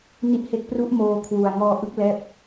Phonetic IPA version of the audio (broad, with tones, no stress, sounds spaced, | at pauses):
n i˦˥ ʔ h e˦˥ k̚ p r u˦˥ ʔ m oː˧ kʰ w u˨˩ a̯ ŋ ɔː˧ ʔ ɯ˦˥ k̚ l ɛː˦˥ p̚